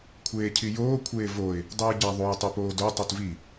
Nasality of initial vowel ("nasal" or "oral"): oral